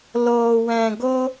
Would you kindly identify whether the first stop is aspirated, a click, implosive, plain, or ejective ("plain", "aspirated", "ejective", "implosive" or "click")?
plain